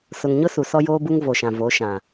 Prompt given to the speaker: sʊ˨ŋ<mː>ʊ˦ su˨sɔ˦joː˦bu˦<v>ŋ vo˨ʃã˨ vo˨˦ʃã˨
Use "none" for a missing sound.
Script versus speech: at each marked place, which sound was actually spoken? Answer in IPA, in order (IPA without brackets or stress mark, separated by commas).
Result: ɲ, none